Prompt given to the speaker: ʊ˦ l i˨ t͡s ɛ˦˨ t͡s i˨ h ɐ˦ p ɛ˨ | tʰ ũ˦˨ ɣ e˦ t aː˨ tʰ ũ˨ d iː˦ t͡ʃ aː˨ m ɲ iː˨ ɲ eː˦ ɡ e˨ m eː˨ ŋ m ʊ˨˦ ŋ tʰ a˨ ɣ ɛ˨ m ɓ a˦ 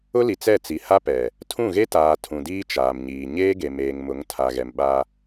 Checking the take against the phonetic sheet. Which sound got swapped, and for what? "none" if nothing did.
ɐ˦ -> a˦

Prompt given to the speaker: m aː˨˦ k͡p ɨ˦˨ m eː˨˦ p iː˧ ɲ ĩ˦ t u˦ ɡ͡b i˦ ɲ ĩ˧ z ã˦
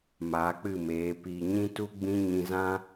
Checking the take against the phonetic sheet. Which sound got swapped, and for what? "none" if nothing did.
i˦ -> ĩ˦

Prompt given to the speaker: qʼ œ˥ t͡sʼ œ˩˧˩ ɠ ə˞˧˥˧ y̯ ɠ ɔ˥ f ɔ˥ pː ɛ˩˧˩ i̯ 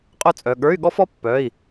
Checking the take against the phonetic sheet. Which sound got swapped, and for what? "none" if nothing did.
ɛ˩˧˩ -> œ˩˧˩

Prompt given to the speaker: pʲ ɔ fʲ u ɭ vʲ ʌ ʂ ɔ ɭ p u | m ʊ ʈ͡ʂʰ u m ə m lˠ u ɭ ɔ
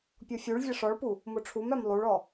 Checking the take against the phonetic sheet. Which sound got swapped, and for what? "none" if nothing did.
ə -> æ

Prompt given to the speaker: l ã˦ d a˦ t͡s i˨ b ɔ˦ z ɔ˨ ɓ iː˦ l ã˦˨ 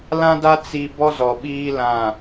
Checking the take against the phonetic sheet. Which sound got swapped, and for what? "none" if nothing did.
none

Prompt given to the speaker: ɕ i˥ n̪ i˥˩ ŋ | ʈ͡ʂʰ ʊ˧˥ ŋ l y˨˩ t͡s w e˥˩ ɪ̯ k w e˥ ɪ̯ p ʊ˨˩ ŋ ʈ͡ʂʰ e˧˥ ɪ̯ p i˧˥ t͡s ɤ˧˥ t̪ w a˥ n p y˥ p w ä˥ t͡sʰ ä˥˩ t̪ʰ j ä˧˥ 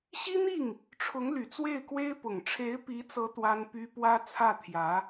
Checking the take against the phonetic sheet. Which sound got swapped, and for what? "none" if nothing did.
none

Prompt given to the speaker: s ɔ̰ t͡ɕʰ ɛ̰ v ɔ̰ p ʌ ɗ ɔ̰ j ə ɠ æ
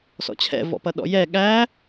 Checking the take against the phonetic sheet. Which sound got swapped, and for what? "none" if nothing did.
ə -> ɛ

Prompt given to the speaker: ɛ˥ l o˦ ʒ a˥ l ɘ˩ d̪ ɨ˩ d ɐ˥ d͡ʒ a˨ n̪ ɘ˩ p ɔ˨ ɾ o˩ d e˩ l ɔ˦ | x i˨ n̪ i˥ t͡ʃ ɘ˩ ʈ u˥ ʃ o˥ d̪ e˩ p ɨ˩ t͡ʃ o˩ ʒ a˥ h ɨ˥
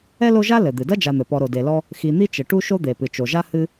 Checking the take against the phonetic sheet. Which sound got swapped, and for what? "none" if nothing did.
none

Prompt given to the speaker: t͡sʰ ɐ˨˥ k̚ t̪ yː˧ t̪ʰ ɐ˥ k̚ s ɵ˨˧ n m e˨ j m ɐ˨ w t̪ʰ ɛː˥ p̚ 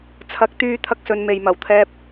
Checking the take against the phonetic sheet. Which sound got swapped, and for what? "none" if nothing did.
none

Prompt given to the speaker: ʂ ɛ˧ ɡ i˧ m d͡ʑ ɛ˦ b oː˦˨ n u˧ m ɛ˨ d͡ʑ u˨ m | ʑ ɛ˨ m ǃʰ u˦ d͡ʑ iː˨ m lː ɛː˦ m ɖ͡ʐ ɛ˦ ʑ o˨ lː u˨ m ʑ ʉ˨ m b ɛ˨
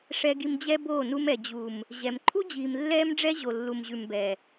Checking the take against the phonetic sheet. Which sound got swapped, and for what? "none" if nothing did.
none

